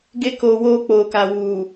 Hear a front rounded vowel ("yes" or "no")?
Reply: no